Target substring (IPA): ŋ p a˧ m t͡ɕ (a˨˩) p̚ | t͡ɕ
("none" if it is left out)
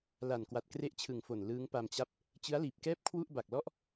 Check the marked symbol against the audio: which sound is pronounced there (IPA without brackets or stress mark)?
a˥˩